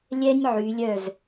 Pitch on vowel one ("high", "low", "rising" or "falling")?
high